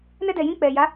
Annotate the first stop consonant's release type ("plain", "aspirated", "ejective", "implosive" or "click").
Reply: plain